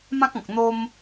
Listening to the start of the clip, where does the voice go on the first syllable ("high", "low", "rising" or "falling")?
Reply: high